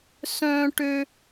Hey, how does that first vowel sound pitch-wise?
high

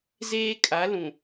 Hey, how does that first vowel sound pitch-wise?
high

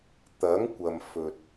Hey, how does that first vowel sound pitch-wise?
rising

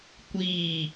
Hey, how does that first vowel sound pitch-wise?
falling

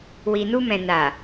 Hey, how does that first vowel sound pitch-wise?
low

